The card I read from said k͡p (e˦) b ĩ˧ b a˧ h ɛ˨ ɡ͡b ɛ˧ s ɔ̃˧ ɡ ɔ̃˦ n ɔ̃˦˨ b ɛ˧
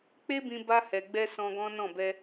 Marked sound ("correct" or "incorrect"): correct